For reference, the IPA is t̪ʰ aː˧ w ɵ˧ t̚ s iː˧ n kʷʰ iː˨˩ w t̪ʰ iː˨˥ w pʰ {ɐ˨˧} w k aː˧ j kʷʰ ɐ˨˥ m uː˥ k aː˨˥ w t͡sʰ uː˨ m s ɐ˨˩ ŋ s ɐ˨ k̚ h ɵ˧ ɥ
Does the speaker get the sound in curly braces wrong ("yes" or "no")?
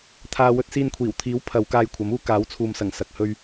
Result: no